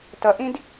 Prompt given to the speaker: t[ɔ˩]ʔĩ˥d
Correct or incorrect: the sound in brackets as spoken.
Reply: incorrect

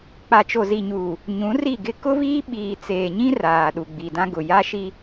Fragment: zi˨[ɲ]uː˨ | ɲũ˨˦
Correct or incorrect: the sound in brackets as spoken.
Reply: correct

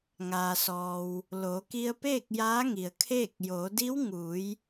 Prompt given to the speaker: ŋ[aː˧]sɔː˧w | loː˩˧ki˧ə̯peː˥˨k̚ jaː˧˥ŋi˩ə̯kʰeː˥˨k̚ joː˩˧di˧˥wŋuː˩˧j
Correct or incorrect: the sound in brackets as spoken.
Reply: correct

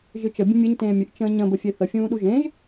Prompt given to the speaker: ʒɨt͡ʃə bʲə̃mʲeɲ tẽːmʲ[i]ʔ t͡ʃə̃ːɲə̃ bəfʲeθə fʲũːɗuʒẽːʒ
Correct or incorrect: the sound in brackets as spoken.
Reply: incorrect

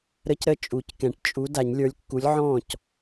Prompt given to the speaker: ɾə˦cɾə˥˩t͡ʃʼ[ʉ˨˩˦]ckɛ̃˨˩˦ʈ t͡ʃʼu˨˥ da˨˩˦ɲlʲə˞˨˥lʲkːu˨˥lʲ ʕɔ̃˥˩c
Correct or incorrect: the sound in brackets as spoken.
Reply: incorrect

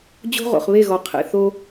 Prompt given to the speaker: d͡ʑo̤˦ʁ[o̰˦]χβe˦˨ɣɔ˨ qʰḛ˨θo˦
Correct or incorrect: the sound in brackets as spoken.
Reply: incorrect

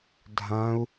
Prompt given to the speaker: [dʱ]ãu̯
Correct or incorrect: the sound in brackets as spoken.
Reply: correct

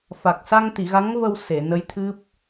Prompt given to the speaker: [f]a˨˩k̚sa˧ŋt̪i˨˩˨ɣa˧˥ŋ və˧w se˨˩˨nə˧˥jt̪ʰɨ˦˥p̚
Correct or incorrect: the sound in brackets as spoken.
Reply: correct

